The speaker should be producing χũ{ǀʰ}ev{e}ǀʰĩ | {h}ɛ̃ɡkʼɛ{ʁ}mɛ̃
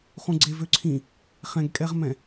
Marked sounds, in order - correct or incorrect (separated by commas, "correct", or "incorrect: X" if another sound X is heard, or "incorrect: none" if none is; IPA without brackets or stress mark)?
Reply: incorrect: ɡ͡ǀ, incorrect: ø, incorrect: χ, correct